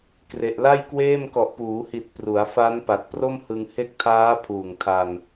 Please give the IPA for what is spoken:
kre˨˩ʔla˥˩jkweː˥˩m kɔ˨˩ʔpuː˩˦hi˨˩t̚ pru˩˦a̯fa˦˥n pa˨˩t̚ pro˥˩mhɯ˧ŋ he˦˥k̚tʰaː˦˥ pʰuː˨˩ŋ tʰa˧n

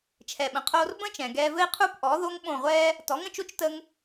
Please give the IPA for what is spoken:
t͡ʃʰɛ˨ɓə̃˨ qʰoː˧r bə̃˦ t͡ʃɛ̃˨ɡɛː˧vɘ˦i̯ qʰu˦pʔɔ˨˦ðo˦ŋ ɓõ˦˨ ʁʷɛː˦ | tɔ˨˦ŋə̃˨t͡ʃo˦t͡ʃ tə˦ŋ

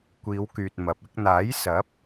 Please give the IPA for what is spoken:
kʷiː˨˧wkyː˨t̚ mɐ˨p̚ ɪ˥k̚ n̪aː˨˥j sɐ˨˥p̚

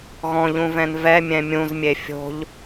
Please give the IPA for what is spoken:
ɣɔ̃ʎũvɛ̃n vɛmʲɛ̃ mʲũzmʲe fʲo̤ʎ

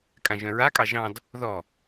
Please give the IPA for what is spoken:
kʼãʒœ̃ɹakʼɑ ʒɑ̃d | ðɔ

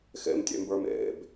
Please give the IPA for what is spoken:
xḛmtʲḛmbə˞m ḛb

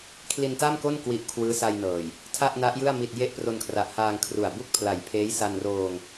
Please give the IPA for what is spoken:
kʰli˧nta˥˩mko˥˩n kwi˦˥ʔkʰwɯː˦˥sa˧jnɤː˨˩j | tʰa˥˩ʔna˦˥ʔjɯ˥˩a̯ mi˨˩t̚ je˦˥ʔpro˧nkʰra˨˩ʔhaː˧ŋ kʰru˨˩a̯ bu˦˥k̚ pʰla˨˩jpʰeː˦˥jsa˧nroː˧ŋ

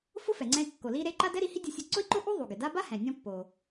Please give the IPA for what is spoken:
fʊ˥fɛ˩ŋ͡ǀɛ̃˧i̯ kːo˩li˧ɾe˧ ǃa˥d ɛ˥ɾi˧hi˥ dʲʊ˧sʲʊ˧ ǀʊ˥i̯ǃo˥ʔu˥ ðˤu˩ɡɪ˩da˥ ba˥hɛ̃˩nʲɔ̃˧ pːo˩

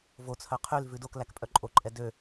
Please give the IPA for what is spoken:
vot͡sʰœ qʰyl vʉdoklæk pʼœǃʼoǃʼɛ dø

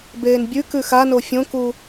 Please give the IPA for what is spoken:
beːnbʲʉkʉ xano fʲõku

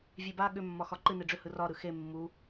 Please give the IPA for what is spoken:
vʲeba ɠʏmːɒ xɒǃɨ neɖ͡ʐʏhɯ rɒ ɾɯxe mːu

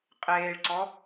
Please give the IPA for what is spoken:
qʼeːɭǀɔ

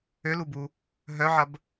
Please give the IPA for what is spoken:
ølubu | ɦœʕɐb

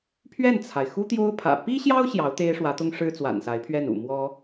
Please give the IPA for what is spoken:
pʰɥɛ˥˩nt͡sʰa˩ɪ̯xu˥ t̪jo˥ʊ̯pʰä̰˨˩ pi˥ɕjɑ˥ʊ̯ ɕjɑ˧˥ʊ̯t̪e˥ɪ̯ʂwä˧˥t̪ʊ˥ŋ ʂɻ̩˥t͡swa̰˨˩nsa˧˥ɪ̯pʰɥɛ˥˩n ṵ˨˩mwɔ˥

